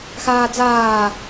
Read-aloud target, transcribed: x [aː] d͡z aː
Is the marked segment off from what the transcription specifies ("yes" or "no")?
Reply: no